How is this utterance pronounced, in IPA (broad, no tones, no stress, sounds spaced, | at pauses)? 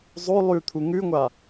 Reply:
zˤ o lˠ ʉ t̪ʰ u ŋ ʉ ŋʷ a